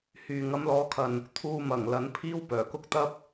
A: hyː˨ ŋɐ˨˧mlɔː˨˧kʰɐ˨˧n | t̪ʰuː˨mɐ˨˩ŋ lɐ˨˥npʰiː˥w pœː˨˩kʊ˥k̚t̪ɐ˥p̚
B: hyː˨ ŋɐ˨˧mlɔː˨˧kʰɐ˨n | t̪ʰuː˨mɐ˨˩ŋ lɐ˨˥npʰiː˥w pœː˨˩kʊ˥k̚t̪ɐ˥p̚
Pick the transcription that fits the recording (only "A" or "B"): B